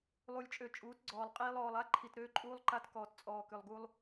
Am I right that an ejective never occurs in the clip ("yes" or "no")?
no